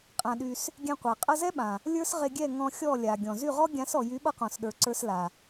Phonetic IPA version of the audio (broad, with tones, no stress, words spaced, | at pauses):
qʼã˧ɗy˧s | ɡʲɛ̃˧qʷa˨ qʼʌ˧zɛ˦ɓã˨ | lʲə˞˦sʁe˧ɡʲɛ˦˨ ŋɔ̃˧xʲɔ˦˨ lʲa˨ɡʲɔ̃˨ zy˦˨ʁɔ˦ ɡʲã˨˦sɔ˨jy˨˦ ɓʌ˦qɔ̃˨sɗə˞˨ǀə˞˧s la˨